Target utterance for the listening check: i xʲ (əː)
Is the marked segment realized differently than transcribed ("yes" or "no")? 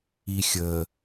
no